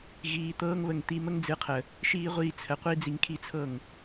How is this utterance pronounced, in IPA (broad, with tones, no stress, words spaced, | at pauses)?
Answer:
ɣiː˦ t̪ɤː˦ŋβə˧ŋ t̪i˧mə˦ŋd͡zɨ˨˦qʰə˨ | ʃiː˦ʁʷiː˧t͡sʰə˨˦qʷi˦ d͡zi˧ŋkʰi˦˨t͡sʰɤ˦˨ŋ